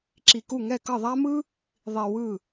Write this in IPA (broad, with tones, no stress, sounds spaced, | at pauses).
ǁ i˧ k u˥˧ ŋ ɛ˥˧ k ʌ˥˧ ðˤ a˥ m ɯ˥ | ðˤ i˧ w ɯ˥˧